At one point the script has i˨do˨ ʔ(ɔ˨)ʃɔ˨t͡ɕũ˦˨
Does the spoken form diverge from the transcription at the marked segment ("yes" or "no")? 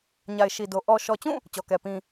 no